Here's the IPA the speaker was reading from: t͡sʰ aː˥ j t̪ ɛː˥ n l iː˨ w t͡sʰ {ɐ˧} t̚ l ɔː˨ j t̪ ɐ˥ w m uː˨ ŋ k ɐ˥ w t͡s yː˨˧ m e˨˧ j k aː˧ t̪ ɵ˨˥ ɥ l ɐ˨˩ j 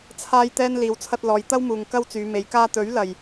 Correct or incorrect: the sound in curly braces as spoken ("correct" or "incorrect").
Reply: correct